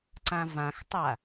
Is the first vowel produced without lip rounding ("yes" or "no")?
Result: yes